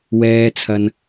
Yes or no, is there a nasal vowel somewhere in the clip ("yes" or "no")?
no